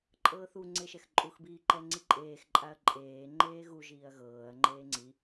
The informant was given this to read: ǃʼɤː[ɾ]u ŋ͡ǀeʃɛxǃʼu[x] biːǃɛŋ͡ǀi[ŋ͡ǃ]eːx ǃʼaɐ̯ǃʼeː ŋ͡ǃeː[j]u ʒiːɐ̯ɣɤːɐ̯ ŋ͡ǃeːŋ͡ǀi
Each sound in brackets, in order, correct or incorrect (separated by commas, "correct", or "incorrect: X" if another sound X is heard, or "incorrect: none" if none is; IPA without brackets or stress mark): incorrect: θ, correct, incorrect: ǃʼ, incorrect: ɣ